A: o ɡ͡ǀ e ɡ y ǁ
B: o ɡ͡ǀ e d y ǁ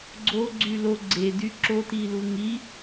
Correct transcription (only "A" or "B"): B